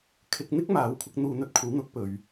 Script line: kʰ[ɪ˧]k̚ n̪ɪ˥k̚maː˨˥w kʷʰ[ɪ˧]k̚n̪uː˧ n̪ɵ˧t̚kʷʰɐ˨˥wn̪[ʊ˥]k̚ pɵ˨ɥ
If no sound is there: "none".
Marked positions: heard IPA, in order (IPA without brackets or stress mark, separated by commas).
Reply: ɪ˧, ɪ˧, ʊ˨˥